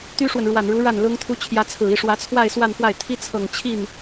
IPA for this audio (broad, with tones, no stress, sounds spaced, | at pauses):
t̪ y˥ ʂ w ə˨ n ɻ w a˨˩ n ɻ u˧˥ ɻ a˥˩ n l ʊ˥ ŋ t̪ʰ u˥ t͡ɕʰ j ä˧˥ t͡sʰ ɹ̩˨˩ i˥˩ ʂ w ä˧˥ t͡sʰ w a˥˧ ɪ̯ s w a˥˧ n f w a˥˩ ɪ̯ t̪ʰ i˥ t͡sʰ ɤ˨˩ ŋ t͡ɕʰ i˥˩ n